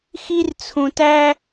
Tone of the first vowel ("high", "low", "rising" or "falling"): high